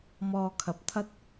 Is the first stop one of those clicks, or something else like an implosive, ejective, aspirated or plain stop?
aspirated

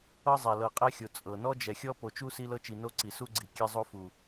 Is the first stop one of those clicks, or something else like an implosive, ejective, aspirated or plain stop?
ejective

